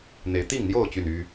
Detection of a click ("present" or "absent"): absent